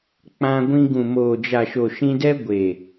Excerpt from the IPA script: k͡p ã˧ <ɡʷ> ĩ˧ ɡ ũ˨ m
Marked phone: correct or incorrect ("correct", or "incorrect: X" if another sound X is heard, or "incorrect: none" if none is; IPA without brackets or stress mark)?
correct